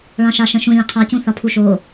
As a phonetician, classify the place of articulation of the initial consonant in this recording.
retroflex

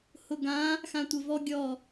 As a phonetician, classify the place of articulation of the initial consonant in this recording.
glottal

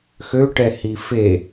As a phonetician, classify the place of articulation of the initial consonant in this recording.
velar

